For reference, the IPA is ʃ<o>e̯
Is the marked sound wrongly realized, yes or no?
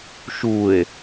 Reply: yes